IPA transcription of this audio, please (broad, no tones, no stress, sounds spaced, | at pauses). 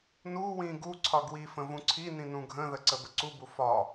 n u w ĩ ɡ u ǀʰ ɒ ɡ w i f ə̃ v ũ ǀʰ i n ĩ n ũ ɡʱ ə̃ ð ə ǀ ə b ə ǀ u b u f ɒ